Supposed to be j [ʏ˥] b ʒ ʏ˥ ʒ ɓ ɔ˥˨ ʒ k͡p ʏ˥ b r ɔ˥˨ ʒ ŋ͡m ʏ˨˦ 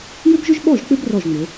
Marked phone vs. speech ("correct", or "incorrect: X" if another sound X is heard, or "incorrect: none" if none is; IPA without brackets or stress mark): correct